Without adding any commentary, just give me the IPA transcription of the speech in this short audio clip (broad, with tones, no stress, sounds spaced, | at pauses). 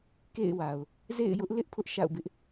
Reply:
k ḛ˦˨ ɪ̯ w a˨ ʊ̯ | z ḛ˦˨ ɪ̯ j ʊ˦ ʔ l ɪ˦ ʔ pʰ ʊ˦ ʔ ʃ a̰˦˨ ʊ̯ b ɪ˦ ʔ